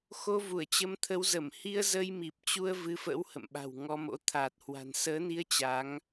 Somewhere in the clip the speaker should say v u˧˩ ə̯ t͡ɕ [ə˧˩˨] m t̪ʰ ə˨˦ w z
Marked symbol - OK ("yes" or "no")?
no